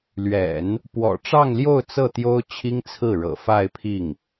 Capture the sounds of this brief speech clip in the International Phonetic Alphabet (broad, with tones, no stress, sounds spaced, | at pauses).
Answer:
l ɥ ɛ̰˨˩˦ n | p w ɔ̰˨˩ ʈ͡ʂ ɑ˥˧ ŋ l j o˥˧ ʊ̯ t͡s ɤ˥˩ t̪ j o˥ ʊ̯ t͡ɕʰ i˥ ŋ t͡sʰ ɹ̩˥˩ ɻ ɤ̰˨˩ f a˥˧ ɪ̯ pʰ i˥˩ ŋ